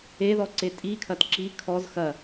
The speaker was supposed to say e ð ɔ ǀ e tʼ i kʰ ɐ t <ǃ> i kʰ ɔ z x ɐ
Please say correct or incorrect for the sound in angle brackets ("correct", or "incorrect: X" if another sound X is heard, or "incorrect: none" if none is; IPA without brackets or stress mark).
incorrect: ǁ